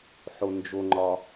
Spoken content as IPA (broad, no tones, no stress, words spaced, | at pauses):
ħond͡ʒoŋ͡ǃɒ